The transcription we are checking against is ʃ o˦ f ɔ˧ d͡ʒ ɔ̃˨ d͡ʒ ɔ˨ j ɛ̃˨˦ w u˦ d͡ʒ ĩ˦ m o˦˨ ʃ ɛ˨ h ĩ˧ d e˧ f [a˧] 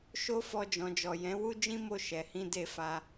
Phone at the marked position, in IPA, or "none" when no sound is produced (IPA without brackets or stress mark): a˧